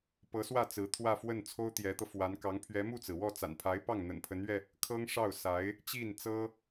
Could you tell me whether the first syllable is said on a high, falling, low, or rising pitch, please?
rising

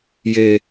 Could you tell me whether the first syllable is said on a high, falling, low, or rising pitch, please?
low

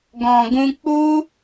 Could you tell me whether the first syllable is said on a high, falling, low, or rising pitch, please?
low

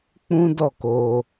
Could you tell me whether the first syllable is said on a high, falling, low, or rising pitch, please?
high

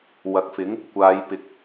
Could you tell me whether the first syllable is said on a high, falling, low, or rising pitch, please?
low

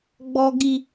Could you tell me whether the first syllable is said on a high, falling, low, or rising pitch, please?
high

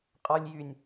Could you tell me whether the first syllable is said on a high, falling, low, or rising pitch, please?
low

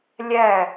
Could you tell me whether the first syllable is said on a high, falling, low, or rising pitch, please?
falling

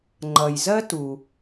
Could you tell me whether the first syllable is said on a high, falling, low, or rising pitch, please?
low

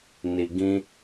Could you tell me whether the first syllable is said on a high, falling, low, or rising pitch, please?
low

